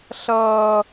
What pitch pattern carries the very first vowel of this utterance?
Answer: high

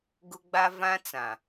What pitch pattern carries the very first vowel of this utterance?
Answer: high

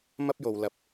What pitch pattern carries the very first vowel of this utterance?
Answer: high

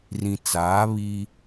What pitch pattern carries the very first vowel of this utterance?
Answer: low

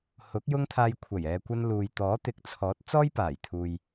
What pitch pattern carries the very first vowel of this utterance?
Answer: rising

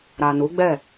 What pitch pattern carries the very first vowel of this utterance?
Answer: low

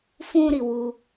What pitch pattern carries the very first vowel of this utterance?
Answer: high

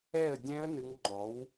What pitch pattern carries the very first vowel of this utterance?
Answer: falling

